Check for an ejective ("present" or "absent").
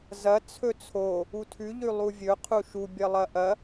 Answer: absent